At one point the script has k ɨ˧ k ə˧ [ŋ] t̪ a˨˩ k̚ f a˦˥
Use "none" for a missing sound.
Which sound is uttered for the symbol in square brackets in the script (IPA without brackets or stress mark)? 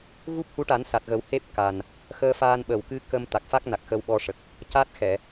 m